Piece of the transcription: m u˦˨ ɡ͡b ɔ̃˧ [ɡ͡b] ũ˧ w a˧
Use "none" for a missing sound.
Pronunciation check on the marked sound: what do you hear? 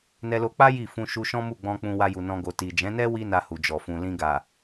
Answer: k͡p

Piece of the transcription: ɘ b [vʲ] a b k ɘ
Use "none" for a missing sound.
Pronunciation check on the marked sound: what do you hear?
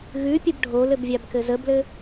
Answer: vʲ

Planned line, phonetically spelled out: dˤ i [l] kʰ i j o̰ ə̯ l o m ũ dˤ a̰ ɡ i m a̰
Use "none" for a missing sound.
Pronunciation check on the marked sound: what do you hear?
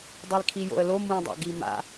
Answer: l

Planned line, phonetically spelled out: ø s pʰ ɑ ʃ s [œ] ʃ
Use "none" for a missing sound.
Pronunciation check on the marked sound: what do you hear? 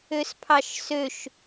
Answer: ø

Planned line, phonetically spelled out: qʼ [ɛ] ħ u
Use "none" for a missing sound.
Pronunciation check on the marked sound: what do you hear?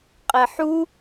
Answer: ɛ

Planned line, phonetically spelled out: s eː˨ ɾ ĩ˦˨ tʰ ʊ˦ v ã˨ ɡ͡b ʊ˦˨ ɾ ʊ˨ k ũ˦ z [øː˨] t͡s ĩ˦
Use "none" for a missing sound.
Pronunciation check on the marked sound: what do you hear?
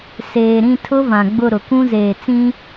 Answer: eː˨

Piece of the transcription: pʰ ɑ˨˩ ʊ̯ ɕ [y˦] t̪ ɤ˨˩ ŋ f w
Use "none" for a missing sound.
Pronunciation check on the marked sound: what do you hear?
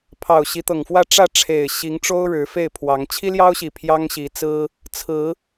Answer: i˦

